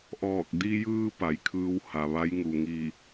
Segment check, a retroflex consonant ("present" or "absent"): absent